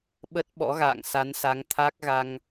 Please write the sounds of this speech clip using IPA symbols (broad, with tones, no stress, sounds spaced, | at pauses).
ɓ ə˦˥ t̚ ɓ ɔ̰˧˥ ɣ a̰ː˧˨ ŋ s a˨˦ n s a˨˦ ŋ t̪ʰ a˦˥ k̚ ɣ a˧ ŋ